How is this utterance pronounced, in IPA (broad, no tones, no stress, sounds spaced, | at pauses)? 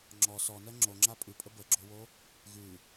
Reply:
ŋ͡ǁ ɔ s ɔ n ɜ ŋ͡ǁ o ŋ͡ǁ a pʼ ʉ pʼ ə b ə ɡ͡ǁ o w o | ɣ ʉ